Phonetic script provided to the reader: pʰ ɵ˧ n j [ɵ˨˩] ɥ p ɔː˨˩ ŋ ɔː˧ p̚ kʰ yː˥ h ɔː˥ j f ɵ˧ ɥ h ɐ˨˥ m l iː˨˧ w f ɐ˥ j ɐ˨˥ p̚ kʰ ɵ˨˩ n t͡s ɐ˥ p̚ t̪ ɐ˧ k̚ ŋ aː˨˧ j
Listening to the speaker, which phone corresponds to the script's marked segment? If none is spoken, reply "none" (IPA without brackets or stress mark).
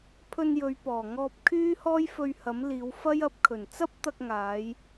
ɵ˨˧